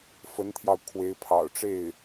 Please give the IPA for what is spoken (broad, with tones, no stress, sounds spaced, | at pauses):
f ə˧˥ n t̪ʰ j ɑ˧ ʊ̯ kʰ w e˧˥ ɪ̯ pʰ ɑ̰˨˩ ʊ̯ ʈ͡ʂ e˥˩ ɪ̯